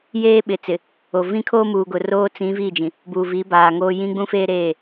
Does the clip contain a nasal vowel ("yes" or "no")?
yes